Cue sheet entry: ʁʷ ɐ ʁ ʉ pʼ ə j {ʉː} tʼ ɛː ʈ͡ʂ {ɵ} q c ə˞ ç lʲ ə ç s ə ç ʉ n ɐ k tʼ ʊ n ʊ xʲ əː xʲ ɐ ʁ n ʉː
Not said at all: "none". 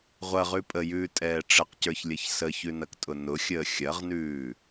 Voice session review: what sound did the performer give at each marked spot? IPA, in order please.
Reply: ʉː, ə

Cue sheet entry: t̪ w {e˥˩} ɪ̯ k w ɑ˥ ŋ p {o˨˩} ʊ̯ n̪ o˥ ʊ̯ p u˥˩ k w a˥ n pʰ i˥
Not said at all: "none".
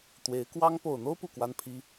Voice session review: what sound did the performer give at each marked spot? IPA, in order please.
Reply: e˧˥, o˨˩

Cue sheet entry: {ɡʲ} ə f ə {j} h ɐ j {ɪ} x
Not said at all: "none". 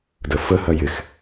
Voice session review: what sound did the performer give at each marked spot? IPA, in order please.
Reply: d, none, ɪ

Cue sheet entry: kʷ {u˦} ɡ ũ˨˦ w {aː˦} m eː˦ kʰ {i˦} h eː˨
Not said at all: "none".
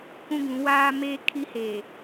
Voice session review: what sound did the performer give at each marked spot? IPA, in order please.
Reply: ũ˦, aː˦, i˦

